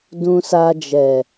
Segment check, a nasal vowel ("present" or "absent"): present